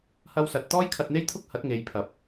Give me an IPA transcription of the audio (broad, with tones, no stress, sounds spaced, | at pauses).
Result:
h ɐ˥ w s ɐ˧ t̚ t̪ ɔː˥ j kʰ ɐ˧ t̚ n̪ e˥ j t̪ʰ ʊ˥ k̚ h ɐ˨˥ t̚ ŋ e˨ j pʰ ɐ˨ p̚